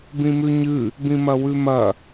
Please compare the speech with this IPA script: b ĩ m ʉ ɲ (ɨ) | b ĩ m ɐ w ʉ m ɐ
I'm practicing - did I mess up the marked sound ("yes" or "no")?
no